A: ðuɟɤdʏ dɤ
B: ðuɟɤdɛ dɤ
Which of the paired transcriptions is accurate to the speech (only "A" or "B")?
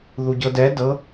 B